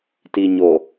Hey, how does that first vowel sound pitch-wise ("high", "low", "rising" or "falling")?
low